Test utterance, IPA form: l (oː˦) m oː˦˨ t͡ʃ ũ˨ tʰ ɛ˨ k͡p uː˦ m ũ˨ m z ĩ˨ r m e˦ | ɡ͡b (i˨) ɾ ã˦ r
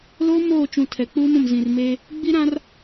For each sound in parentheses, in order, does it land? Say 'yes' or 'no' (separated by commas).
yes, no